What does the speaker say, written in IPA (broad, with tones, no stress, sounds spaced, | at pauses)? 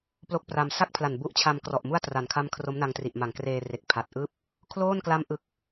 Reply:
p l o˥˩ k̚ p r a˧ m s a˥˩ k̚ pʰ l a˨˩ n b u˦˥ ʔ t͡ɕʰ a˧ m k r ɔ˨˩ ʔ m u˥˩ a̯ t r a˨˩ n kʰ a˦˥ m kʰ r o˦˥ m n a˧ ŋ t r i˨˩ ʔ m a˨˩ ŋ k r eː˧ r e˨˩ k̚ pʰ a˨˩ t̚ ʔ ɯː˥˩ p̚ | kʰ l oː˥˩ n k l a˦˥ m ʔ ɯ˨˩ k̚